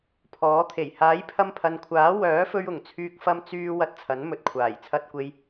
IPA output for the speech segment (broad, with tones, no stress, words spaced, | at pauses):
pʰɔː˨˥t̪ʰe˨˩j haː˨˥jpʰɐ˧mpʰɐ˨nkʷʰaː˨˥ wœː˨˥fɵ˧ɥʊ˨˩ŋ t͡sʰyː˧k̚ fɐ˧mt͡syː˧ wɐ˧t̚t͡sʰɐ˨˥n mɵ˨t̚kʷʰaː˨˩j t͡sʰɐ˧t̚kʷe˧j